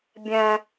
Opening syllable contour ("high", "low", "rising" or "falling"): high